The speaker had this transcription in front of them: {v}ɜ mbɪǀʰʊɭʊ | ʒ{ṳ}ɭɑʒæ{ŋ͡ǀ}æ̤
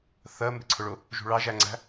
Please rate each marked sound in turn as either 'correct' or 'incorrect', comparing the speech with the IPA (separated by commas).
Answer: incorrect, correct, correct